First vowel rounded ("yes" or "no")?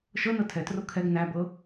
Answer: no